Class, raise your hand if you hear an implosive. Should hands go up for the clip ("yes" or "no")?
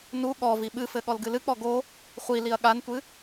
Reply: yes